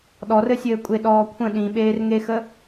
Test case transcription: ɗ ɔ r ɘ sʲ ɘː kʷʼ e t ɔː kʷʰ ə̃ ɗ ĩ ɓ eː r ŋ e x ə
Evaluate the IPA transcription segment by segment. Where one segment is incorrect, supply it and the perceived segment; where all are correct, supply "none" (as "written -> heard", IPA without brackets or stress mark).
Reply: t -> ɗ